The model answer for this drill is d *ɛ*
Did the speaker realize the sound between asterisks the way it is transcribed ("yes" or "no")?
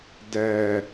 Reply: yes